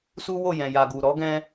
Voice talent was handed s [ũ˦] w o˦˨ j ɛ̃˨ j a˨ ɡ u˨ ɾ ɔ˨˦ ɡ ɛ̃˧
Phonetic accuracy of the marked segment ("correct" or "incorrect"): incorrect